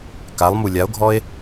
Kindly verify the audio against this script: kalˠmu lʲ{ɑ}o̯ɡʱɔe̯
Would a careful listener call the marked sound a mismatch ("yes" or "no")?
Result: yes